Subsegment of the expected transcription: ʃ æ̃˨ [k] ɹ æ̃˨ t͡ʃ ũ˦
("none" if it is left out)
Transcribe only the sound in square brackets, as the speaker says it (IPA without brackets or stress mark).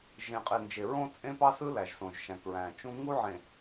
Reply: k